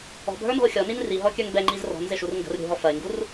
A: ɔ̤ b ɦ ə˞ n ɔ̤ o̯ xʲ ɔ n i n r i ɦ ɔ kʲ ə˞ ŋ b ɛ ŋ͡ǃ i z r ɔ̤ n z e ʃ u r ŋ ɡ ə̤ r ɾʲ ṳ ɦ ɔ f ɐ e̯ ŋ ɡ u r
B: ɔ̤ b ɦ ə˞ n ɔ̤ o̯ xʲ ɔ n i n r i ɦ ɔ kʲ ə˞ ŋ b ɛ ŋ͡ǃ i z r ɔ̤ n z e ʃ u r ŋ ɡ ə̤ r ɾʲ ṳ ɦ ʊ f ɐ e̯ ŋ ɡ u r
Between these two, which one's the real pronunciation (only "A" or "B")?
A